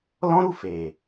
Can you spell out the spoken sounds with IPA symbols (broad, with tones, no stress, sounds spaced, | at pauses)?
l ɔ̃˦ ɾ u˦˨ f e˨